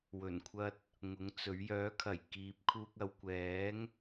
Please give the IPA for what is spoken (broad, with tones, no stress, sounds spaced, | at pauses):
w ɵ˨˩ n kʷʰ ɐ˧ t̚ | ŋ ʊ˨˥ ŋ t͡s ɵ˨˥ ɥ j œː˨˥ kʰ ɐ˨˩ j k iː˨ p̚ kʰ uː˧ k̚ ɐ˨ w kʷ ɛː˨˥ ŋ